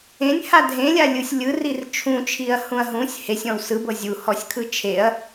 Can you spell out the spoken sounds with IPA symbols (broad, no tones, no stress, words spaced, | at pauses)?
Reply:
ẽnʲha dʱẽlʲalʲɯsʲ lʲɯrir t͡ʃʰũt͡ʃʰiɐ̯hũɐ̯ ɦũsʲ hesʲɔ̃w sɯbɤ zʲuhɔsʲkʰɯ t͡ʃʰeɐ̯